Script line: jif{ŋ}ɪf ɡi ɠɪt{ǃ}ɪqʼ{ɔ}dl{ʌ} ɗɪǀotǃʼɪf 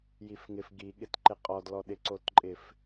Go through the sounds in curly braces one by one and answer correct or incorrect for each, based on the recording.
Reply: correct, correct, correct, incorrect: ɔ

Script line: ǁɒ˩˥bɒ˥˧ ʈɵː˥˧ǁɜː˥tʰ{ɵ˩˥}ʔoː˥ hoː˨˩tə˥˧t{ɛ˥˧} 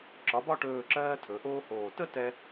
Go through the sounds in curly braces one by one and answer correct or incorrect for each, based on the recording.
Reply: correct, incorrect: ɛ˧

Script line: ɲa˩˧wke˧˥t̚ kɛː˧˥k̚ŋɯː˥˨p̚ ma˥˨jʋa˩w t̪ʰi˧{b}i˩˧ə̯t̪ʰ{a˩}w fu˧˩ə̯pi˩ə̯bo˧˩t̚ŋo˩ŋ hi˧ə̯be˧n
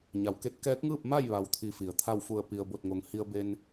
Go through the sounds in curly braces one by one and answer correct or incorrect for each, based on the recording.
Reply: incorrect: f, incorrect: a˥˨

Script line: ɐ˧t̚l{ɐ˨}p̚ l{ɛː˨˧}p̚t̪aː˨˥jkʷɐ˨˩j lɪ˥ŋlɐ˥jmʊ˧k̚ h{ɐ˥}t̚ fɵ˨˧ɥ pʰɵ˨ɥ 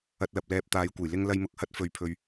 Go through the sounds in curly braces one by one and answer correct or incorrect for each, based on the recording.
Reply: correct, incorrect: ɛː˧, correct

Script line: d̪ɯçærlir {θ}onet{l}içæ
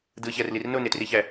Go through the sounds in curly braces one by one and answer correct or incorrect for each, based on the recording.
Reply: incorrect: n, incorrect: r

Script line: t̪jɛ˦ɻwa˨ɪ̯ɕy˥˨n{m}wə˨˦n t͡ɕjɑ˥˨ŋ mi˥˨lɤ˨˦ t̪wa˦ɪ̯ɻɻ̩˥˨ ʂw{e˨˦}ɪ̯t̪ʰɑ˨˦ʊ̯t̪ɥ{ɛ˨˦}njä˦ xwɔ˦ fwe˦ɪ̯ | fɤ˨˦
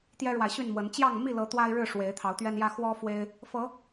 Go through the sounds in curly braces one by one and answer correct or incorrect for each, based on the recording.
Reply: correct, correct, incorrect: ɛ˦

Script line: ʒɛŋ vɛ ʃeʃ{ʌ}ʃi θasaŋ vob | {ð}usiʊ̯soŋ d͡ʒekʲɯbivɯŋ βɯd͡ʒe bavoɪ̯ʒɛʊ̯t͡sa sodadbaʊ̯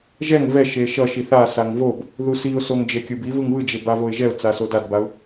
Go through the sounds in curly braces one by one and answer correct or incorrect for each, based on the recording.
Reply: correct, correct

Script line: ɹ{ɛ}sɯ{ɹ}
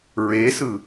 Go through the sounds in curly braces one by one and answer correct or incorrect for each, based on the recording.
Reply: incorrect: e, incorrect: none

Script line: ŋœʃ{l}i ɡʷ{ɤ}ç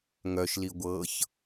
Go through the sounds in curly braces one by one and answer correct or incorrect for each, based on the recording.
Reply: correct, correct

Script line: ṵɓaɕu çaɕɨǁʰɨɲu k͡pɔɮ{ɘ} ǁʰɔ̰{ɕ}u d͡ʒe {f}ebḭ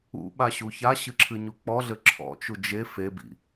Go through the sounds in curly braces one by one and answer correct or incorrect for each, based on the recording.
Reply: correct, incorrect: t͡ʃ, correct

